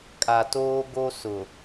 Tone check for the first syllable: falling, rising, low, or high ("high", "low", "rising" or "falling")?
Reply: low